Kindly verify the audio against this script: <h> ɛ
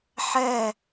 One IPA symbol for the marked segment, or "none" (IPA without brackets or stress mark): ħ